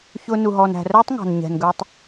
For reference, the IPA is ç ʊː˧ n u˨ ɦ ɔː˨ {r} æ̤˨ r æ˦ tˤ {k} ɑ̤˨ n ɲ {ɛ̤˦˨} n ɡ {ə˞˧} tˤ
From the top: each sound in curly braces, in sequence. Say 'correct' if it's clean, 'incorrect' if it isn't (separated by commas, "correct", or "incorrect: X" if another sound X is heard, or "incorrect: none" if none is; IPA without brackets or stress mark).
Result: incorrect: n, incorrect: ŋ, incorrect: ɛ̤˨, correct